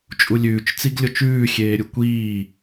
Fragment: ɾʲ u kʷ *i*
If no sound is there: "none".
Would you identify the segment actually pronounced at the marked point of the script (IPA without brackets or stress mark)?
iː